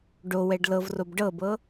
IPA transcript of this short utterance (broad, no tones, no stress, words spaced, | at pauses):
ɖowɛɖ lɤvrob ɖɤbɤ